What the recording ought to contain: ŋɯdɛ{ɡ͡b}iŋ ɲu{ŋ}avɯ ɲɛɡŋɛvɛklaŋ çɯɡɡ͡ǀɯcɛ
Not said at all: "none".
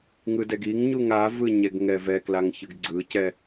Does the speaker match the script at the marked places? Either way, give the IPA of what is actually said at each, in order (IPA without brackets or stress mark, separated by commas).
ɡ, ŋ